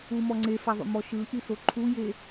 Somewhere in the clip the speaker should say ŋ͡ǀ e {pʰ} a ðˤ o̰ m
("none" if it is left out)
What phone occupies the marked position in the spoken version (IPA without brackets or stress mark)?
f